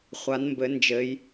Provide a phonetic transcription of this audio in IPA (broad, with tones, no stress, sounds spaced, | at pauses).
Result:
χʷ a˩˧ n m b ɘ˩˧ n d͡ʒ ɘ˩˧ j